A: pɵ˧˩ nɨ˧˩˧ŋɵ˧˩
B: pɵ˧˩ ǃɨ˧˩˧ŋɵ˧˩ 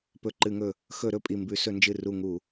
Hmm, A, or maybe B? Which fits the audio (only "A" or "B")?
B